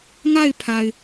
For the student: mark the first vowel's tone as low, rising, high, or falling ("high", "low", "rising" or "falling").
falling